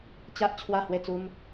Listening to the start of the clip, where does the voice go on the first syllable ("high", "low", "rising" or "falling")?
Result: high